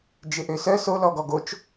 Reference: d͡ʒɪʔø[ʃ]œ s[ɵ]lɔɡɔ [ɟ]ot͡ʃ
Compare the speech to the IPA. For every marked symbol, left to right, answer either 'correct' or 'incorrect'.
incorrect, incorrect, incorrect

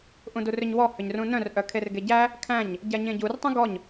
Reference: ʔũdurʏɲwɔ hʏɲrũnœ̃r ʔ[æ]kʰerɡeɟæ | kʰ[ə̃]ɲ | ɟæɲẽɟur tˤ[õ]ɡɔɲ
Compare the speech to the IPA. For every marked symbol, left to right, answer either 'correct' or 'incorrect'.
incorrect, incorrect, incorrect

